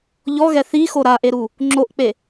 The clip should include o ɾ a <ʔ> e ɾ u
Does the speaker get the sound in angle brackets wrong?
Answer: no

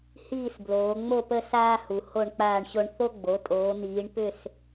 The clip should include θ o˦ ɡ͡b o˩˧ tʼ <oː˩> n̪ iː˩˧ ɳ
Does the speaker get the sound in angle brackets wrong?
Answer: yes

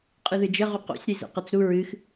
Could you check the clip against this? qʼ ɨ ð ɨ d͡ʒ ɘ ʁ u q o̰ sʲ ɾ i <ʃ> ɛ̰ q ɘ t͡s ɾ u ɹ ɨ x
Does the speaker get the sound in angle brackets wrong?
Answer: yes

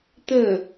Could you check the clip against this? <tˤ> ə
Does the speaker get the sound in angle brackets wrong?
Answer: yes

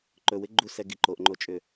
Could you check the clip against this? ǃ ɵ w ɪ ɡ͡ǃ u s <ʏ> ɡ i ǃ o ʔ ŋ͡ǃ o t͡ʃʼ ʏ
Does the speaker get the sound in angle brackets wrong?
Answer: yes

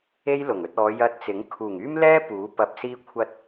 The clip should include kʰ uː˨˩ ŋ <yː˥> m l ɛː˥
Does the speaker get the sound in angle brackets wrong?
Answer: no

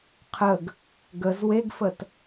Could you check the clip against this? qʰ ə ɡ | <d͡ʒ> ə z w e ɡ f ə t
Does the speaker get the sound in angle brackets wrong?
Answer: yes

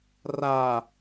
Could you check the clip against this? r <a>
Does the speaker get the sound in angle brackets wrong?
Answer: no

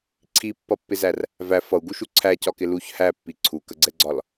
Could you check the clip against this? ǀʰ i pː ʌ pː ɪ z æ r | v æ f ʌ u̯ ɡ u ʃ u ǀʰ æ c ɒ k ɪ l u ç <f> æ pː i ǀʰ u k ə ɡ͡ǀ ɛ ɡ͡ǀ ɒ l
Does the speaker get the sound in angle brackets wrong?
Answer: yes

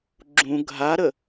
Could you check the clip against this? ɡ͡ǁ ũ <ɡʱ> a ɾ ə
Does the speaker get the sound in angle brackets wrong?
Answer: no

